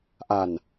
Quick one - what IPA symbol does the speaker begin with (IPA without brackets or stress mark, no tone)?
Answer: ʔ